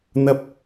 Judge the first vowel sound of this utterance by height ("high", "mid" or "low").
low